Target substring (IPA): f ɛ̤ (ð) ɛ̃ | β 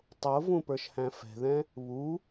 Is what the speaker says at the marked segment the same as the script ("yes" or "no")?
yes